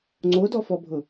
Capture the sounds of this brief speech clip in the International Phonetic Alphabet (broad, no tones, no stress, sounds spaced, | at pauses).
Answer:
ŋ͡ǀ o d ɔ f ɔ bʱ ʊ